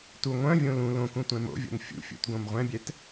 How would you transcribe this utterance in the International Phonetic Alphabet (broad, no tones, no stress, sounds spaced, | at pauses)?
t u ŋʷ œ̃ vʲ õ l ũ l õ k ũ tʷ ɛ̃ m o̰ vʲ o̰ n fʲ ṵ fʲ ṵ t ɡ õ m ʁʷ ɛ̃ bʲ ɛ t